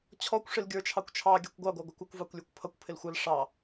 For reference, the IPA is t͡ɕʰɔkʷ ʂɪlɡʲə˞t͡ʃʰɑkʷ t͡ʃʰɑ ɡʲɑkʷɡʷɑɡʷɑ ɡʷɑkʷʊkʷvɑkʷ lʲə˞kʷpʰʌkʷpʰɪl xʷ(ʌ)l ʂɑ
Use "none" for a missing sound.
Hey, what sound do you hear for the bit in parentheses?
ʌ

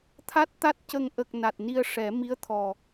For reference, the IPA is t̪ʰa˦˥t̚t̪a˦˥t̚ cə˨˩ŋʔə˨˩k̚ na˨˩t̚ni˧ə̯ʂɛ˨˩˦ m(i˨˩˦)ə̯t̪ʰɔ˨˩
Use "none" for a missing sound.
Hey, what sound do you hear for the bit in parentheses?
i˧˥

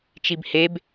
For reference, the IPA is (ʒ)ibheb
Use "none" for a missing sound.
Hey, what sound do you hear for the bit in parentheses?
t͡ʃ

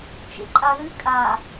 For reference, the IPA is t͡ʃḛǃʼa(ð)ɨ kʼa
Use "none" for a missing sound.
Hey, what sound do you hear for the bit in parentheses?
ð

